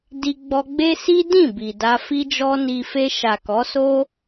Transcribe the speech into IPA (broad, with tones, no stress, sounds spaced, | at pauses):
d i˧ ɡ͡b ɔ˧ ɡ͡b e˦ s i˦ d ĩ˦˨ b i˨ d a˧ f i˦ d͡ʒ ɔ˦ n i˧ f e˧ ʃ a˨ k ɔ˨˦ s o˦